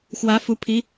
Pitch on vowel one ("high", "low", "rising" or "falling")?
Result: rising